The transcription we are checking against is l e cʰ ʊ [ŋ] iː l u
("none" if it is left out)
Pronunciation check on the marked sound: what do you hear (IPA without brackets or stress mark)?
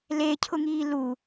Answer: ŋ